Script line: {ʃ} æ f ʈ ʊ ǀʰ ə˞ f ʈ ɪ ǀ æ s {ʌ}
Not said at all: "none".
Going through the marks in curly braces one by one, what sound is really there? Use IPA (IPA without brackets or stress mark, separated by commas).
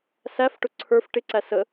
s, ə